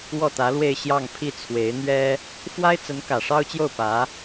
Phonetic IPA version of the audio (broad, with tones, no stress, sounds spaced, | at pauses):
w ɔ˥˩ t̪ ä˧˥ l w e˥˧ ɪ̯ ɕ j ɑ˥˧ ŋ pʰ i˥˩ t͡sʰ w e˧˥ ɪ̯ n̪ ɥ ɛ˥ | f w a˥ ɪ̯ t͡s ə˧˥ n k ä˨˩ ʂ ɑ˥ ʊ̯ t͡ɕ j o˥˩ ʊ̯ p ä˧˥